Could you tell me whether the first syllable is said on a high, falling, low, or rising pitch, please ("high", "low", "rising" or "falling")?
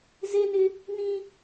high